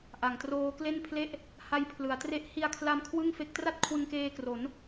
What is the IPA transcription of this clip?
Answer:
ʔ a˨˩ ŋ t r oː˦˥ k l e˥˩ n pʰ l e˥˩ ʔ | h a˦˥ j pʰ l ɯ˩˦ a̯ t r e˥˩ ʔ h i˧ a̯ kʰ l a˧ m kʰ w ɯ˥˩ ŋ f e˦˥ k̚ t r a˥˩ t̚ kʰ w ɯ˧ ŋ k eː˧ k r o˩˦ n

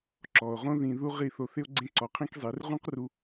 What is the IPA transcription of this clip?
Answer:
ǁ ɔ˨ o̯ ʁ õ˦ ð ĩ˧ ð u˦ ʁ i˦˨ θ o˧ θ ɪ˦ o̯ ɡ͡ǀ ẽ˦ ǀ ɔ˧ qʰ ĩ˦ k zˤ i˨˦ r ʁ ũ˦ q r u˧

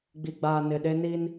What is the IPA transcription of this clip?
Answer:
ɡ͡b i˨ ɡ͡b aː˨ n ɪ˨ ɗ e˦ n i˦ n

